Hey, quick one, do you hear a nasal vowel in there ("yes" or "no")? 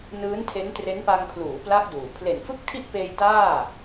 no